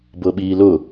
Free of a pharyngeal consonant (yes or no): yes